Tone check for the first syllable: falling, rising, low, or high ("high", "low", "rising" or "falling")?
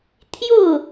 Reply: falling